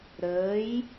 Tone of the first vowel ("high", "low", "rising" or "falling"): rising